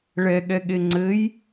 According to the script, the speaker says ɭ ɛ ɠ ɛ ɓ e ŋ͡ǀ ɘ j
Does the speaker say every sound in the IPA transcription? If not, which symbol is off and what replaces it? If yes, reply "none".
ɓ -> ɠ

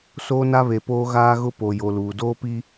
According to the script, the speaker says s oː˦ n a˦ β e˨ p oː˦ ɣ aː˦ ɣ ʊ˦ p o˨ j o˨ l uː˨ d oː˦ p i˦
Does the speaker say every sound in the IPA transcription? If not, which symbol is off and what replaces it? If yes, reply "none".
none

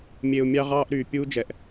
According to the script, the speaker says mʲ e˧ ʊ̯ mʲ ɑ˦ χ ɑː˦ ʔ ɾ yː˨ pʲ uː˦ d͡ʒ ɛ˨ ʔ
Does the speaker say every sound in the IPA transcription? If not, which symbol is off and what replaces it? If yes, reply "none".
χ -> ʁ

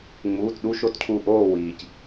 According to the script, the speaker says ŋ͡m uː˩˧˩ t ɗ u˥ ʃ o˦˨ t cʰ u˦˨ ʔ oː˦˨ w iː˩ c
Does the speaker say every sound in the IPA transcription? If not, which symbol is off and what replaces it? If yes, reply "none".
none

